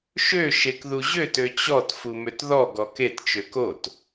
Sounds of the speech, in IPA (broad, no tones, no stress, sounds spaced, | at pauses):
ʃ ø ʃ e k ð u ʑ ø t ø t͡ɕ ɔ t f u m ø t ð ɔ ɡ ɔ k e t t͡ʃ ø k o t